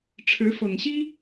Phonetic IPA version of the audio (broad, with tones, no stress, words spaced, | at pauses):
ʈ͡ʂʰɻ̩˨˦fɤ˨˩ŋɕi˦